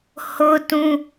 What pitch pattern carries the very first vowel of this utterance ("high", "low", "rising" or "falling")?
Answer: high